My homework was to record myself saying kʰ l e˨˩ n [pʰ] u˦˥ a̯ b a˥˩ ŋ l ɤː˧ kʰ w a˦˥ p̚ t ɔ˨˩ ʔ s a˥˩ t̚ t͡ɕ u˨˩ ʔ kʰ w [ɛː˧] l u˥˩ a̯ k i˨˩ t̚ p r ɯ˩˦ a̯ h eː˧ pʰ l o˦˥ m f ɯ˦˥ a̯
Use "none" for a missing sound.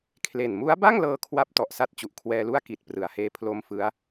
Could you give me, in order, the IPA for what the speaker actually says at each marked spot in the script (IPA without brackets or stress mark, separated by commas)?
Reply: m, ɛː˧